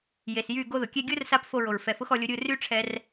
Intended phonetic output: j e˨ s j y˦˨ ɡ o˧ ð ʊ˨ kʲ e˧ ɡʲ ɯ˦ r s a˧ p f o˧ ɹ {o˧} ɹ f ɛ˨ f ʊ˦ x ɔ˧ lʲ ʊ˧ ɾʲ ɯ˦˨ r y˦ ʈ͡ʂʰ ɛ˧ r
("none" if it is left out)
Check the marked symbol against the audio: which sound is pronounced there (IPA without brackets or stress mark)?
o˨